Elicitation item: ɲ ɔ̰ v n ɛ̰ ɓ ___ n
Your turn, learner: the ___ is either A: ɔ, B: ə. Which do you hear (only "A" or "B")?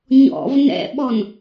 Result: A